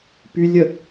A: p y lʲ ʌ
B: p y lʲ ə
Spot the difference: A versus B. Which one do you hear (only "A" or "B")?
B